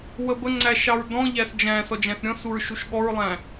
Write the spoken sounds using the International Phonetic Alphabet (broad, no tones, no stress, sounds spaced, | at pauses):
w ə b ə ŋ͡ǀ æ ʃ ɑ ɹ d ɔ̃ ʎ æ s d͡ʒ æ̃ s ɔ d͡ʒ æ̃ s ɾʲ ɔ̃ s u ɹ ʃ u ʃ ɠ ɔ ɹ lˠ æ̃